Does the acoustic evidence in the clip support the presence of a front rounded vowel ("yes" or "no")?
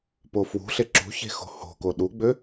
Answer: yes